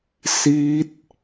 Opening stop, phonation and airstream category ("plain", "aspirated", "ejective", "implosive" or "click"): plain